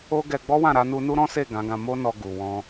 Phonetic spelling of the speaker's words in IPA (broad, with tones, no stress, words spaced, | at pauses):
o˦ɡɛ˧ ɡ͡bɔ˦wã˦˨ɾa˧ nu˧nu˦ɾɔ̃˦se˦˨ ɡã˨˦ɡã˧ mo˦ nɔ˧ɡu˨wɔ̃˧